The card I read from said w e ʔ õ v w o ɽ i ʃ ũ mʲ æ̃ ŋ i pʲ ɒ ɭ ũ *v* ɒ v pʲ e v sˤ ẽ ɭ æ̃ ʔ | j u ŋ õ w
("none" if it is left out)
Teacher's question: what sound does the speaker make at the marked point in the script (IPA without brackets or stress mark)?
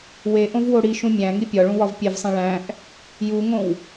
w